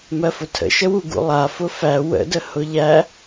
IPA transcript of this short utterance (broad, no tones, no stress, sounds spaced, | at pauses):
m ɜ f ʊ tʰ ə̰ ʃ ə w u ɡ ṵ lˠ a f ʊ f æ w ə̰ d ə h ʊ ʎ æ